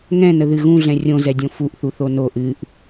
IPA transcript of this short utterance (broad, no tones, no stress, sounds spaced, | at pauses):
ŋ ɛ̃ n ə ð ɨ ɣ ũ ɮ ɛ̃ rʲ õ z ɛ dʲ õ f u ʔ θ u θ o n o ʔ ɨ ʔ